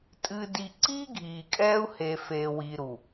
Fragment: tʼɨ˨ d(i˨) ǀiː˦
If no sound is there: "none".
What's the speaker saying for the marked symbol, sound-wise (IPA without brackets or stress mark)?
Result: i˨